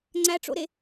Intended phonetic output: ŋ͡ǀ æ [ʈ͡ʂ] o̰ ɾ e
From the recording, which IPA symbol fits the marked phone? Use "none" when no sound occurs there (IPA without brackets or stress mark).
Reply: ʈ͡ʂ